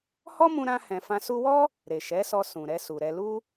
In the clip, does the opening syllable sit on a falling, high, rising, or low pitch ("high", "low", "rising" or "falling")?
high